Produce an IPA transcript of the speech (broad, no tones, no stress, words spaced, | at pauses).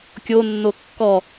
kʲonːo kːɔ